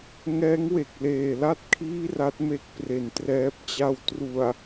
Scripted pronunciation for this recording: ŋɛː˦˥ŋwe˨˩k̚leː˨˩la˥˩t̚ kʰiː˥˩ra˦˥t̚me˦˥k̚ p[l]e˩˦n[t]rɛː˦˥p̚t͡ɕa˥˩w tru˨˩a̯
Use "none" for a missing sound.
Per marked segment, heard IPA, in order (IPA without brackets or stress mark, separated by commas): r, t